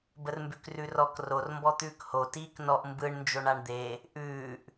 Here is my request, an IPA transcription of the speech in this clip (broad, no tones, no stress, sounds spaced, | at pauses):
b ə r m b ʉ k r ʉ r ɔ k r o r m b ɔ t̪ ʉː k h o t iː k n ɔ ʔ m b ɯ ɳ n d͡ʒ o ɳ a ɳ d̪ e | ʔ ʉː ʔ